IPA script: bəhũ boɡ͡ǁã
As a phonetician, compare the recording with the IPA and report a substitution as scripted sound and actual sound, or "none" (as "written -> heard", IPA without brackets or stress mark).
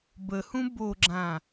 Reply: none